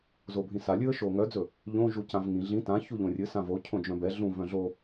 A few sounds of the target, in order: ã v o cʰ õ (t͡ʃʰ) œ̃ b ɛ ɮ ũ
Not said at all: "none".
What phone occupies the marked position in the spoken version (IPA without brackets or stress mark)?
d͡ʒ